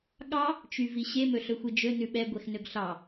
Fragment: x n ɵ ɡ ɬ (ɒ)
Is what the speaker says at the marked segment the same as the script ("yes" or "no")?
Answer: no